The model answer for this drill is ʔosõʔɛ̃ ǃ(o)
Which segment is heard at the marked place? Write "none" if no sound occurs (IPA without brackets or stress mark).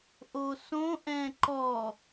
ɔ